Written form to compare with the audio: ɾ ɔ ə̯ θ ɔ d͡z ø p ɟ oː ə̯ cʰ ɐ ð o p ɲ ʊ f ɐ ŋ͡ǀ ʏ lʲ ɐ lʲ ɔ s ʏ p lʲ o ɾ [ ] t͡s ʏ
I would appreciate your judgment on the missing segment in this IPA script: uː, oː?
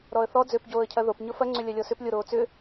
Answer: oː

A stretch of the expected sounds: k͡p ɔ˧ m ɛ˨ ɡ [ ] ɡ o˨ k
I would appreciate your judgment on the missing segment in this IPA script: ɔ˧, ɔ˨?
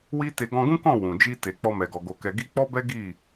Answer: ɔ˨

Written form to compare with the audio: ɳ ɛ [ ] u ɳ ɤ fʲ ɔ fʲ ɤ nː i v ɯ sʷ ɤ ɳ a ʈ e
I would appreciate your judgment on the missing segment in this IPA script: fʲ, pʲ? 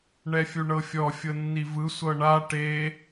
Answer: fʲ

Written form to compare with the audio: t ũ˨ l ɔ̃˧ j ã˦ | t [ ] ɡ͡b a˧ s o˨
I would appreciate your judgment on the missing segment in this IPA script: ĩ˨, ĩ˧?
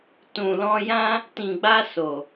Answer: ĩ˨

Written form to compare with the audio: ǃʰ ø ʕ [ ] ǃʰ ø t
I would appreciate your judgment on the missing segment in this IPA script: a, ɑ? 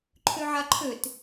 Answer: a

